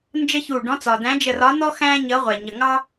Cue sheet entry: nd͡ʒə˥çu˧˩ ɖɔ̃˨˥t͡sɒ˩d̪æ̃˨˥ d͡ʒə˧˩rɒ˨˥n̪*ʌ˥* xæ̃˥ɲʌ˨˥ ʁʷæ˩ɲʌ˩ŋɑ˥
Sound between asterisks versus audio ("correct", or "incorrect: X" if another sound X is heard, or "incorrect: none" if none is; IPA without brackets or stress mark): incorrect: ɔ˥